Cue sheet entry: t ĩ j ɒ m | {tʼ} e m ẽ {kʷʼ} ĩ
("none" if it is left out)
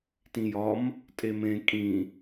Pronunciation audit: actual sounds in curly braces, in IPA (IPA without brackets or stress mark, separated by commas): tʼ, kʼ